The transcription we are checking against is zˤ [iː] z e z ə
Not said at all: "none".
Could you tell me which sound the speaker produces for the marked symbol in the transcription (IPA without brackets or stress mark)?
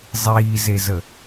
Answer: iː